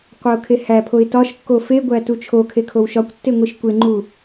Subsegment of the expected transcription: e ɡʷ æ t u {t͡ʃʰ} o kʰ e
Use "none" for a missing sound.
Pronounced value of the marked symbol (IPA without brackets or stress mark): t͡ʃʰ